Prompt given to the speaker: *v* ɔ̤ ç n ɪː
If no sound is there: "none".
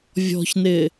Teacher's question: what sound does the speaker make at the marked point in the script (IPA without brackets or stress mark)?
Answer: vʲ